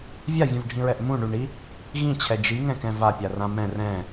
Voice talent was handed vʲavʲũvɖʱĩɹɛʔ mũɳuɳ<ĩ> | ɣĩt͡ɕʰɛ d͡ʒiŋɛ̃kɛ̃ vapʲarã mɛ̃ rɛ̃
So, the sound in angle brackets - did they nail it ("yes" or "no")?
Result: no